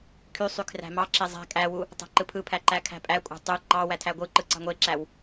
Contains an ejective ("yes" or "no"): yes